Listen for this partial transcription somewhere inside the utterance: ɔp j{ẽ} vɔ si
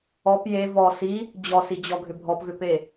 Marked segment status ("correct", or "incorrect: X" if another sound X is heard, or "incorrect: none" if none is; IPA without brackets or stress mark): incorrect: e